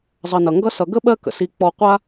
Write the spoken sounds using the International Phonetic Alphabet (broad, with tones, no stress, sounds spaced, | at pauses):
zˤ ʌ˨ n ʌ˩ ŋ ɡ ʌ˥ s ʌ˨ ɡ ə˥ ɓ ɜ˦ k ə̰˩ s i˨ k͡p ɔ˨ qʷ a˦